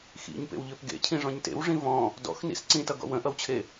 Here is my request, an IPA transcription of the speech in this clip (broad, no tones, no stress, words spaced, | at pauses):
xḭɲpḛwʎøp ɡḛcʰĩʐɔ̃ɲ tḛwʐĩ vɔ̃ | dɔ̰xnḭs ǀĩtʌɡɔ̰ wə̃ʔʌwt͡ɕʰe